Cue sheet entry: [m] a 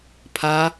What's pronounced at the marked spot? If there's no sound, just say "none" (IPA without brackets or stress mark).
pʰ